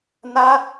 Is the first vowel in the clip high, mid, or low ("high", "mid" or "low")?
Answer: low